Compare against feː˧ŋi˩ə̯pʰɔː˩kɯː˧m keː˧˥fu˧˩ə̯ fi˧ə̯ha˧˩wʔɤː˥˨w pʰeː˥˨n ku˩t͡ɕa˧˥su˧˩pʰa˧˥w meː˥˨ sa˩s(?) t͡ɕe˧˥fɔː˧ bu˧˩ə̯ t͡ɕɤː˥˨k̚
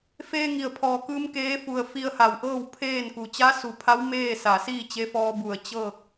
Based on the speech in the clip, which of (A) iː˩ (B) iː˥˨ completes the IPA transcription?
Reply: B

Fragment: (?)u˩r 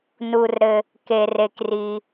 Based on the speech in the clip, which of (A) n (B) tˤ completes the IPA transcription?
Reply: A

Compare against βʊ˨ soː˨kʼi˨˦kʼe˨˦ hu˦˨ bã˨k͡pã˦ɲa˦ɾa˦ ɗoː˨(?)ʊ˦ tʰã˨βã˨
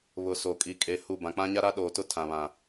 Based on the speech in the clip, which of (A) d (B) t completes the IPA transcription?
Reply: B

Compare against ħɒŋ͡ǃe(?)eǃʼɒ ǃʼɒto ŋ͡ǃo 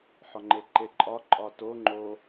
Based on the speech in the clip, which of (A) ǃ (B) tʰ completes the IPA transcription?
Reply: A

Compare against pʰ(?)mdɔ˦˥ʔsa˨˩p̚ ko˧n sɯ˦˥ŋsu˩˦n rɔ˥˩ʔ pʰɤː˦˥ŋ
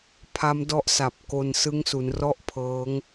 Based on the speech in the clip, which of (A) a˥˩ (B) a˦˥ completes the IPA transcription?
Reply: B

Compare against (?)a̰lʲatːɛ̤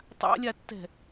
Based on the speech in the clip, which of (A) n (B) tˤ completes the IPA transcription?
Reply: B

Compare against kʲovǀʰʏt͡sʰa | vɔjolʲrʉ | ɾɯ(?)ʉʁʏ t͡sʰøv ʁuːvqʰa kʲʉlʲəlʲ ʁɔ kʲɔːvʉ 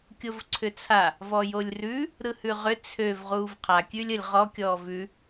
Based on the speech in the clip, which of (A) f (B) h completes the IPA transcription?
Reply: B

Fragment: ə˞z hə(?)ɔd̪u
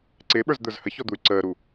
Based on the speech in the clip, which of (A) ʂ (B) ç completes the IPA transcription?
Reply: B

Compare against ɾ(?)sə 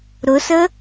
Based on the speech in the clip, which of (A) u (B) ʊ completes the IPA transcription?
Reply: B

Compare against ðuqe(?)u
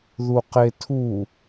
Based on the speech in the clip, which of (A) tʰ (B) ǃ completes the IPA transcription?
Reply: A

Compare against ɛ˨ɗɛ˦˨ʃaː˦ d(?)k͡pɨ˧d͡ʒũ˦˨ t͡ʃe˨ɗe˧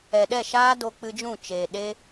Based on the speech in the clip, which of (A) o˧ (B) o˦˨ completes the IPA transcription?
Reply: A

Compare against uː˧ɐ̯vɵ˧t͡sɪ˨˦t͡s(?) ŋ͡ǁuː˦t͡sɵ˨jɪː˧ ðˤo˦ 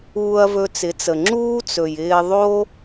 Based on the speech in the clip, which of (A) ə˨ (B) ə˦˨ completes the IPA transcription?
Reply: A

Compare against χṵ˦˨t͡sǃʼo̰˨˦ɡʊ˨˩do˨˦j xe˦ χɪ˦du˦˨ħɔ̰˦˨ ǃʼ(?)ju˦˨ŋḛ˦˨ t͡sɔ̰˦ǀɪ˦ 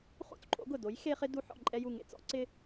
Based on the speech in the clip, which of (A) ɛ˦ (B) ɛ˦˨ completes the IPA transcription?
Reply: A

